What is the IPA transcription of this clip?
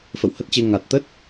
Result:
f ə̰˧˨ w h ə˦˥ t̚ t͡ɕ e˧ ŋ a˨˩ t̚ t̪ ə˦˥ t̚

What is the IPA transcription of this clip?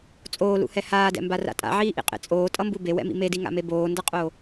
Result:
t͡sʼ oː l ṵ h ɛ h aː d ɛ̰ m b a r a̰ tʼ a̰ ʕ iː ʔ ḭ qʼ ḛ t͡sʼ oː tʼ ʌ m b u b e w ɛ̰ m ḭ m e d i ŋ a̰ m e b oː n d ʌ qʼ o

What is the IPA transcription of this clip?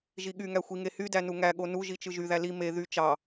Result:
ʒ i ɠ y ŋ æ xʷ i ŋ e h y d æ n u ŋ æ ɠ o n u ʒ i t͡ʃ ɯ ʒ y ð æ l i m e ð y t͡ʃ ɑ

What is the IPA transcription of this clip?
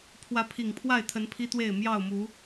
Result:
pʰ w ä˨˦ pʰ i˨˩ ŋ pʰ w a˥˨ ɪ̯ t̪ʰ ə˨˦ n pʰ i˦ t̪ w e˥˨ ɪ̯ m j ɑ˥˨ ʊ̯ m u˨˦

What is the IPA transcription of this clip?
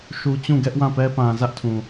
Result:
ʃ u˨ t͡ɕ ũ˦˨ ɡ ɛ˦ ʔ w ã˦˨ p ɛ˦ p ã˨ z ä˦ ʔ tʰ ũ˨

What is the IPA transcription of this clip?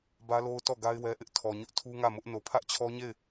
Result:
b ä˦ l o˦ ʊ̯ t ɔ˦˨ ɡ a˦ ɪ̯ w ɛ˦ ʔ ɪ˦ ʔ tʰ ɔ˨ ɲ ʊ˦ ʔ tʰ u˦ ŋ ä˦˨ m ʊ˦ ʔ n o˨ pʰ ä˦ ʔ t͡ɕʰ ɔ˦ ɲ e˦˨ ɪ̯

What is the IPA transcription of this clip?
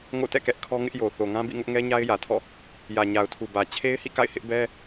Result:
ŋ o̰˦˨ t ɛ̰˦˨ k ɛ˦ ʔ kʰ ɔ˦ ŋ ɪ˦ ʔ j o˨ θ o˨ ŋ ã˦ b ḭ˦˨ ŋ ʊ˦ ʔ ŋ ɛ˦ ɲ a˦ ɪ̯ j ä˨ tʰ ɔ̰˦˨ | j ä˨ ɲ a˨ ʊ̯ tʰ u˨ b ä˨ t͡ɕʰ e˦ ɪ̯ h ḭ˦˨ k a̰˦˨ ɪ̯ h ɪ˦ ʔ b ɛ˦

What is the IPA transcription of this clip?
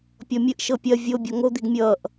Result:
pʲ ɔ mʲ ə ʔ ʃ ɤ pʲ ɐ vʲ o bʲ ɔ ŋ o d̪ i ɡ mʲ ʌː ʔ

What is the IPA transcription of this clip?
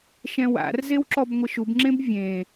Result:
ʃ ɛ̃ w a̰ r z e w ǁ ɔ b ŋʷ ɪ ʃ u b ŋ͡ǁ ẽ b vʲ ẽ

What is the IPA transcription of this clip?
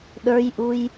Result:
ɗ ə˞ j ʔ u j

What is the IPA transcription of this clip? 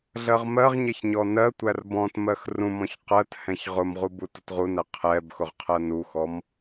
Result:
ɮ ɜ ʁ m ɜ ʁ ɲ ɛ ç ɲ ɔ n ɜ tʷ æ r b ɔ̃ t m ɜ x r ũ m ɔ̃ ç q ɜ t h ɛ̃ ç ʁ ʊ m ʁ u b u t ʊ t ʁ u n æ qʰ ɛ b x ʊ ʁ qʰ ɜ n u x ɔ m

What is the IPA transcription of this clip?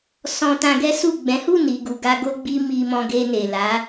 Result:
s ɔ̃˧ t ã˧ ɡ ɛ˦ s u˦˨ ɡ͡b ɛ̃˨˦ h u˦˨ n i˨ ɡ u˨ ɡ a˧ ɡ o˦ ɡ͡b i˦ m i˧ m ɔ̃˧ ɡ e˧ n e˨ l a˨˦

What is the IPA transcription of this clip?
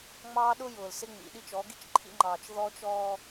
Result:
ŋ͡m ɑː˦ ɗ ʊ˦ j ʊː˨ l s ɪ˦ ŋ͡m ḭ˨ ɗ i˦ t͡ʃ ɔ˨˦ ɡ i˦ t͡ʃ ǃʰ ḭ˦ ŋ͡ǃ ɑː˨ t͡ʃ ð ɔ˦ t͡ʃ ɔː˦

